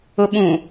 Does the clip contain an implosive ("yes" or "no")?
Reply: yes